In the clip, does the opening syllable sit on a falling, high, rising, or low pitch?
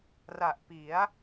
low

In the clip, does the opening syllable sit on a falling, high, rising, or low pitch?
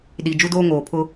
low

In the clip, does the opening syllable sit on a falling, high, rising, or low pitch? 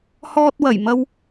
high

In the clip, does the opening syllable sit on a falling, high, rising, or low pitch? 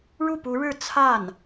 falling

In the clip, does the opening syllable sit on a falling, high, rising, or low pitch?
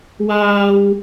high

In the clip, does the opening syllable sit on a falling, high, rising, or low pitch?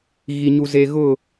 low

